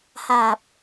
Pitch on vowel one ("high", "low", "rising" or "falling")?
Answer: low